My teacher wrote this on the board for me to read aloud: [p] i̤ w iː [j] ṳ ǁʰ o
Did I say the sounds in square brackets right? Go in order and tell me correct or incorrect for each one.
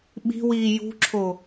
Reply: incorrect: ɓ, correct

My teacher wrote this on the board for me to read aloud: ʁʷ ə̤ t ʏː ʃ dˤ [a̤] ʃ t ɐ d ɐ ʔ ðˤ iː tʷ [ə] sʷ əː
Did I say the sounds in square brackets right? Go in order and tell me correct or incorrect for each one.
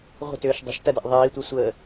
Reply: incorrect: ə̤, incorrect: ɛ

